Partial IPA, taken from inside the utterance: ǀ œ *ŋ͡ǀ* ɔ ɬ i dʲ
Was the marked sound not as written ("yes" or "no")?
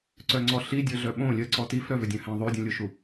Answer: no